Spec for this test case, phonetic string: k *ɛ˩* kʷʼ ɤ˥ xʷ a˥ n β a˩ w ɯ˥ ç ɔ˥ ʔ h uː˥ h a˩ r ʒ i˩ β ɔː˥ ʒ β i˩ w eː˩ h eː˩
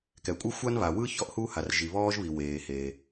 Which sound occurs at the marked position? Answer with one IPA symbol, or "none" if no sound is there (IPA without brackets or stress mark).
ɛ˩